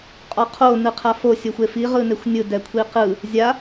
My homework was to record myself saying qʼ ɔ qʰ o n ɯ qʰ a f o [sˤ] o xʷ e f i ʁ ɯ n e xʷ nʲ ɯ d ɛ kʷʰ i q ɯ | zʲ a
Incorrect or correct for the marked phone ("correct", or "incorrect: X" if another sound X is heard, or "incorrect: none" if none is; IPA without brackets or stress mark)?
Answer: incorrect: sʲ